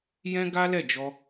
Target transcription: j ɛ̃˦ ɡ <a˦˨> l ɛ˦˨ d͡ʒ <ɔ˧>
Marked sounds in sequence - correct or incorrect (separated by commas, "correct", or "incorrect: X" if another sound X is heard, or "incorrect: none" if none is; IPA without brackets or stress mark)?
incorrect: a˦, correct